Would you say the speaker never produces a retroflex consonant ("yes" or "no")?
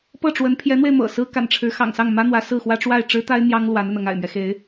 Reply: no